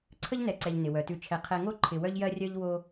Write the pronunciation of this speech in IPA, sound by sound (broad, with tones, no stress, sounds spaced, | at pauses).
ǀʰ ə˥ ʎ n ɛ˨ ǀ ɛ˨ ʎ n ɪ˩ w œ˩ t ʉ˨ t͡ʃʰ ɛ˨ qʰ ɛ˨ ŋ o˥ ǃʰ ɪ˨ w œ˦ ʎ j ɜ˦ rʲ œ˦ ʎ w o˦